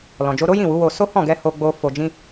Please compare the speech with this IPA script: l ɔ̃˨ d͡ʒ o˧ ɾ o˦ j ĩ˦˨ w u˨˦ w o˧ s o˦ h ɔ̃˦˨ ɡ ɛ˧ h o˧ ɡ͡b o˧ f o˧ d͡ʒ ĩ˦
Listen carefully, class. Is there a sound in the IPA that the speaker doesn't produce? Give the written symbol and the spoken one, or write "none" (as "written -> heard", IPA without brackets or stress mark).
none